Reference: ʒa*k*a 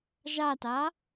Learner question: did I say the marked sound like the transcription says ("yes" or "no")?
no